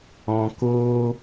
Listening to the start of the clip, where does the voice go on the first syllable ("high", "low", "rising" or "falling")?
low